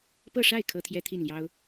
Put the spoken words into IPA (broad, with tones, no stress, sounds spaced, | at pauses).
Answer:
p ɤ˥˧ ʂ a˥˩ ɪ̯ kʰ ɤ˥ t̪ʰ j ɛ˥ t̪ʰ i˥˩ n l j ɑ˥ ʊ̯